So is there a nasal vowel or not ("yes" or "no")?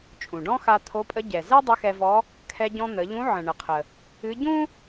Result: yes